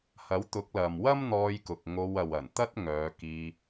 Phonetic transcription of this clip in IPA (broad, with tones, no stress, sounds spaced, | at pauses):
h ɐ˨˥ w t̪ ʊ˨˥ k̚ l ɐ˨ m w ɐ˥ m n̪ ɔː˧ j k ʊ˨ k̚ ŋ o˧ w ɐ˨ w ɐ˨˩ n t̪ ɐ˥ t̚ ŋ œː˨˧ k iː˧